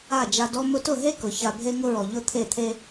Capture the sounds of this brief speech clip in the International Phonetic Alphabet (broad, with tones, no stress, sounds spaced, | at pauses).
a˦˨ d͡ʒ a˧ d ɔ˦ m ʊ˧ t ʊ˦˨ ɦ e˦ k ʊ˨ ç a˧ bʱ e˧ ŋ ʊ˧ ɹ ɔ˨ ʎ ʊ˦˨ t̪ʰ e˦˨ t̪ʰ e˦